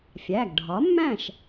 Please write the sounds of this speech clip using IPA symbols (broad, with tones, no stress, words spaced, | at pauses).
fʲæ˩˧˩ɡɖʱɒ˩˥mːæ̃˥˩ʃ